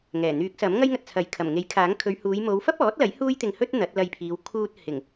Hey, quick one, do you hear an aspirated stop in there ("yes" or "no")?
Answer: yes